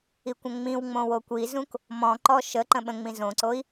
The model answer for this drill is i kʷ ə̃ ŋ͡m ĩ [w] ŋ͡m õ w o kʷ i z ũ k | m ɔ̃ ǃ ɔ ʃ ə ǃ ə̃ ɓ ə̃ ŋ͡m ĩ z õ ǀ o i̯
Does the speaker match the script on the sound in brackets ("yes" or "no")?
yes